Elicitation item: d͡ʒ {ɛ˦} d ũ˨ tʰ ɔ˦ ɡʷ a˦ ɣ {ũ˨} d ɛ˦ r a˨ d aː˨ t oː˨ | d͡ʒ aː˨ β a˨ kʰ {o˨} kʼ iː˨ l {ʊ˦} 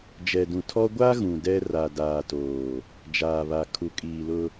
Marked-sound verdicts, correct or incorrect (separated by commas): incorrect, correct, incorrect, correct